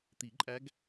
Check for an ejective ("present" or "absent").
present